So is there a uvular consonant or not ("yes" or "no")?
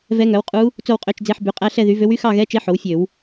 yes